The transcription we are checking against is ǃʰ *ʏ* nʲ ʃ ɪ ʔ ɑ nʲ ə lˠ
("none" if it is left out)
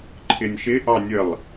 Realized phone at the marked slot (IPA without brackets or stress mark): ɪ